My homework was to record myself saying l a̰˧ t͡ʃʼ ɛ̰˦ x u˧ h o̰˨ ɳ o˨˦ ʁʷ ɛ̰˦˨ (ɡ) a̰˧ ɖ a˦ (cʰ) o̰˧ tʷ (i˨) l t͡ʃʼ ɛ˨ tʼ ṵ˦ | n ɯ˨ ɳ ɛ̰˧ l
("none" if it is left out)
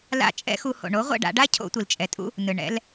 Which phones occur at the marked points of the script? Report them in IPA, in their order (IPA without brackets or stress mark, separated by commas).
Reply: ɖ, cʰ, i˨